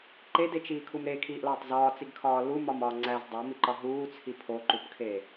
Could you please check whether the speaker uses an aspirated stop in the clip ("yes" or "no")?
yes